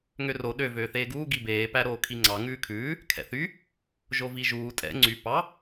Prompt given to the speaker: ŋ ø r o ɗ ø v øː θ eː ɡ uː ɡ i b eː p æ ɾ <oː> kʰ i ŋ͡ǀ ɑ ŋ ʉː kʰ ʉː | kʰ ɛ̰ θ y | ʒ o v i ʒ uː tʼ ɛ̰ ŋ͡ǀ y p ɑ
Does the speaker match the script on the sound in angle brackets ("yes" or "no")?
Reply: yes